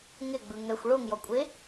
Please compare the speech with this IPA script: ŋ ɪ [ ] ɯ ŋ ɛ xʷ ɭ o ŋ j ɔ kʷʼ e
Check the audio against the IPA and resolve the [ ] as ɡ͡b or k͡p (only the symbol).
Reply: ɡ͡b